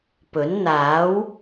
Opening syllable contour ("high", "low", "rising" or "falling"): rising